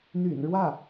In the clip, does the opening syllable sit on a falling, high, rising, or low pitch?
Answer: low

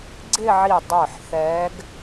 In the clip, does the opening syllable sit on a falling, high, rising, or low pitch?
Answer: falling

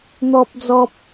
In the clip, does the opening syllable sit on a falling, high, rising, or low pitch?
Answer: high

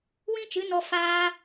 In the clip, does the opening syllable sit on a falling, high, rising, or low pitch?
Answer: high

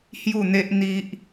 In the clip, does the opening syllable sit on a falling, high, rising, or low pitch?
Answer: falling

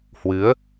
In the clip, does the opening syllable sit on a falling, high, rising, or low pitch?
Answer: rising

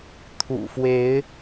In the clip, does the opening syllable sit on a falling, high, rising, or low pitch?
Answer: low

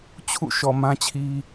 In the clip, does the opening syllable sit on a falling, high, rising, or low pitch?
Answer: falling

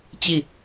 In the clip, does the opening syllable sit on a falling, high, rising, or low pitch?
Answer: falling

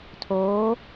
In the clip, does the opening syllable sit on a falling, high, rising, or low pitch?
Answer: rising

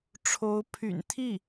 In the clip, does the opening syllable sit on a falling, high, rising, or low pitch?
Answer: rising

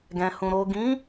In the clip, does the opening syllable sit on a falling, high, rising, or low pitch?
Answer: low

